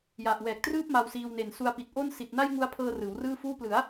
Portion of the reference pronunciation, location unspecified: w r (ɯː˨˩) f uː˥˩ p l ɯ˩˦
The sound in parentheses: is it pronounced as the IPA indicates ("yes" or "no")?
no